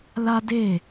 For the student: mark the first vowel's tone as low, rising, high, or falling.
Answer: high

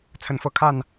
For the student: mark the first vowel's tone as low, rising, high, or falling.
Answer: rising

